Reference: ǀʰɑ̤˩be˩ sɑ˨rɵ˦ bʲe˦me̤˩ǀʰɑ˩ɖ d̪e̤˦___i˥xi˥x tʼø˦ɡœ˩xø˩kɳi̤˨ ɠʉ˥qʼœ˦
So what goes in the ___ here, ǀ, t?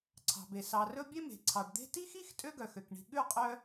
t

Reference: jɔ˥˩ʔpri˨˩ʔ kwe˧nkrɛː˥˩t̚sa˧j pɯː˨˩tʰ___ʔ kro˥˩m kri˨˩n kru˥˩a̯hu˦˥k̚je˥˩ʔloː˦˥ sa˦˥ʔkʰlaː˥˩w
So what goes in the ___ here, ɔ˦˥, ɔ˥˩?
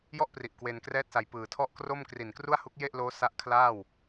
ɔ˥˩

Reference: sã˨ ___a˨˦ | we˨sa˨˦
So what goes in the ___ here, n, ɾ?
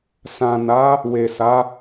n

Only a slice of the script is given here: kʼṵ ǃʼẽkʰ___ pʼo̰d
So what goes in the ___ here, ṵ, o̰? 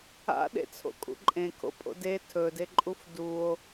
o̰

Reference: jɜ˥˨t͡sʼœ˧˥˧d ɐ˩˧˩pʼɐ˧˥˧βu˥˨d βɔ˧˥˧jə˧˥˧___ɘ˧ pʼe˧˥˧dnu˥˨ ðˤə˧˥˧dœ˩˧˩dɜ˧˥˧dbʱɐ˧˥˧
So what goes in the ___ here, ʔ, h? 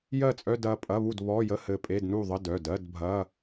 h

